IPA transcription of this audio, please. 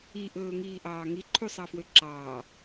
iʔɵːŋiːʔɑː ŋiǃʰusˤɑfwø ǁɑː

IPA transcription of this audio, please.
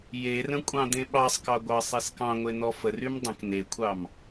jerə̃ kʷʼɑ̃d̪ẽɓɑsˤkɑ ɡʷɑsˤeskɑ̃ŋʷe n̪ɔfərym dˤə̃k nekʷʰɑm

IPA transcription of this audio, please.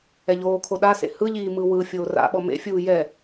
ɛʎoːkʰo ɗasḛ hɯʎiː mɯwɯ fʲoːra̰ɓɔ mḛfʲuː jɛ

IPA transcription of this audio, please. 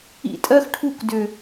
ḭ˧tʼɜ˦xʈʰu˦˨k dʏ˨

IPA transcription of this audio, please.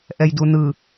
ʔɛjdunɯ

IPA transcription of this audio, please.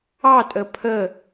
ɑtʼə pʰə

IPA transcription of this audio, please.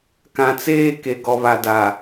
kã˨t͡seː˦ ke˨ɡɔ˨βa˨da˨

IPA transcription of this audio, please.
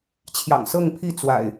t͡ɕʰjɑ̰˨˩ŋsɤ˥˨ŋpʰi˥˨ t͡swa̰˨˩ɪ̯

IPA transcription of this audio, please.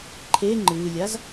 ǃʰe ŋ͡ǃɨːlʲaz

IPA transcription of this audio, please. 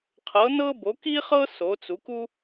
qʰɤ˩˥ nɤ˥ bo˩˥ki˥χɤ˥ so˩˥t͡su˩˥ku˥

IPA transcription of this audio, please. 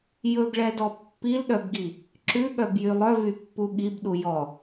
jɵɡɭɛdɔ pːilɗœbɡi | ǁʉɠœbjy lˠœvypːu ɠibɗu jɔ

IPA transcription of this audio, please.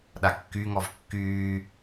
ɗakːyŋɔv kːyː

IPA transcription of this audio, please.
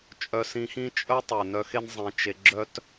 t͡ʃʼœ˧sĩ˧xĩ˦ t͡ʃʼœ˦tˤʉ˨ nœ˧xe˦n zˤẽ˧t͡ʃe˧ ɡ͡ǁœ˦t

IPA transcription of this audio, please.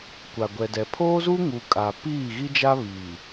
kʷa˨ɡʷɛ˨dɛ˨ pʰoː˦zu˦ŋu˨ kʼa˨ piː˦˨ɣi˦d͡ʒa˦ βiː˨

